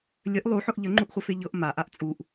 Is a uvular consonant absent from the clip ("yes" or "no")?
no